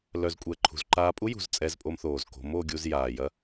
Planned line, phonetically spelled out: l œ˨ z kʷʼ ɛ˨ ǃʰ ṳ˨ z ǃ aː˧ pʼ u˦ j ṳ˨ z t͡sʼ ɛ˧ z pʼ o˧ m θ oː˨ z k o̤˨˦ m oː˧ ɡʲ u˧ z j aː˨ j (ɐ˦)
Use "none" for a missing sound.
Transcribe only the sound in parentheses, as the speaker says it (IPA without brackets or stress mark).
ɐ˦